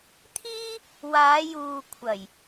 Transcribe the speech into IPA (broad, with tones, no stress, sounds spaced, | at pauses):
t̪ʰ iː˥ | w aː˨˧ j uː˨ kʷʰ ɐ˨˩ j